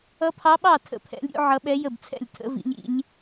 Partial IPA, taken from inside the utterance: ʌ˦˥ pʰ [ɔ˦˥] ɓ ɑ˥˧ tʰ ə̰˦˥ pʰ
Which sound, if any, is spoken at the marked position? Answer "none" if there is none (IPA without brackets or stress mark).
ɑ˦˥